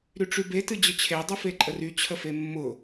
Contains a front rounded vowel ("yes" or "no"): yes